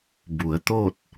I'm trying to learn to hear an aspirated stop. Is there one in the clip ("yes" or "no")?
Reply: no